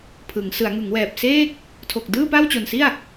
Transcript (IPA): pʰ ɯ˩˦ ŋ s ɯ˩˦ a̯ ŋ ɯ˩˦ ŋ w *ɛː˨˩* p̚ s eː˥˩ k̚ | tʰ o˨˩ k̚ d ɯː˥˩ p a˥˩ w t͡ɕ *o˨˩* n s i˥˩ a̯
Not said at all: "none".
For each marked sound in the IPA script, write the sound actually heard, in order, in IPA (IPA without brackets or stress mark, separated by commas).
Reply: ɛː˨˩, o˨˩